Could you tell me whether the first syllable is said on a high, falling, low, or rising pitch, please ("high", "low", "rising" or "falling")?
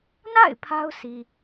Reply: falling